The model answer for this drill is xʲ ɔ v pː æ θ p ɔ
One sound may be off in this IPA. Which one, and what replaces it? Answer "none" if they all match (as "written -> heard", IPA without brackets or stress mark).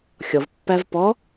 θ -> v